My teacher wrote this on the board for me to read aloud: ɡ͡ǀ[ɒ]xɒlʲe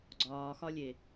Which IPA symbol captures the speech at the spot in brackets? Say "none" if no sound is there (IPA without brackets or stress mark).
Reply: ɒː